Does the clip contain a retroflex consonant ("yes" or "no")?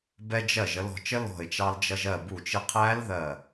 no